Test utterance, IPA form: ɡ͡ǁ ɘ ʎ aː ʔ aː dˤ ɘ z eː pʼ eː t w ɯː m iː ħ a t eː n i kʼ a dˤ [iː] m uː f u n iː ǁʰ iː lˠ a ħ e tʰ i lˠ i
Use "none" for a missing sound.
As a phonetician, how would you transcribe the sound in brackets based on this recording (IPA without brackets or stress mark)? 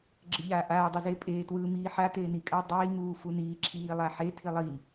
iː